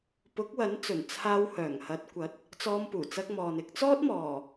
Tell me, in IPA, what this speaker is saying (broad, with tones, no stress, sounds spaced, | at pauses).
p ʊ˨˥ k̚ w ɐ˨˥ n t͡s ɵ˨˩ n t͡sʰ aː˧ w h œː˨˩ ŋ h ɐ˨˥ t̚ kʷ ɐ˨˥ t̚ | t͡s ɔː˧ m p uː˨˩ t͡s ɐ˧ k̚ m ɔː˨ n ɪ˧ k̚ t͡s ɔː˥ t̚ m ɔː˨˩